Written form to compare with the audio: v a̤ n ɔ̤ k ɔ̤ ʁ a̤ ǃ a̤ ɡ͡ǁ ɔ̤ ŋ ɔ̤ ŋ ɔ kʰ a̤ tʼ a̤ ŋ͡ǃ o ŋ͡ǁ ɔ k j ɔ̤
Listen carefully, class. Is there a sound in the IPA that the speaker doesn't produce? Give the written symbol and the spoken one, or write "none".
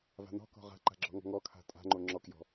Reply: none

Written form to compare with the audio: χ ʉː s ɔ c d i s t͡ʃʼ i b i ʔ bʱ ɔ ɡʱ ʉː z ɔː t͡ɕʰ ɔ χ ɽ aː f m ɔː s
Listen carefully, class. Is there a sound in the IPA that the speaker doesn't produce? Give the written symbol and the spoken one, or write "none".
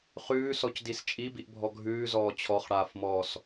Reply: none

